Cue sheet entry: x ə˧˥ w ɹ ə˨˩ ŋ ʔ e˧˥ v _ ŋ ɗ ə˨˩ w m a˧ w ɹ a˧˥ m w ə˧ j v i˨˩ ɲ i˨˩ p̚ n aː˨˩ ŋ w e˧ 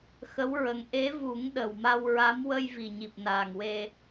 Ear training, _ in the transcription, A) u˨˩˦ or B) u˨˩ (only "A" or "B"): A